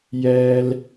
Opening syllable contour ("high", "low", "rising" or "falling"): high